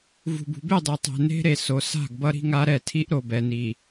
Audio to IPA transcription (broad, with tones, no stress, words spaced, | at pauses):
vṳ˨bṳ˨be˦˨dˤi˨ tˤɛ̤˨ne̤˦ɾe˨ so˨sa̤˦˨ɡ bʌ˦ɾi̤˦ŋa˦ɾɛ˦˨ tʰi˦ʔɾo˨bɛ˨ ni˨